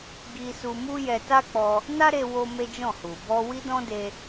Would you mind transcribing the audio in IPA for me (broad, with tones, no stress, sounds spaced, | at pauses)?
ɡ i˧ s u˧ m u˦ j ɛ˧ t a˦ k͡p ɔ˧ | n a˦ ɾ e˧ w o˦ m e˦ d͡ʒ ɔ̃˦˨ h u˨ b ɔ˧ w i˦ d ɔ̃˦ d e˧